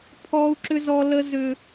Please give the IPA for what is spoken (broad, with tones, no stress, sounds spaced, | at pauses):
pʰ ɔ˦ u̯ ǁ ʏ˦ z ɔ˦ l ə˦ z ʏ˦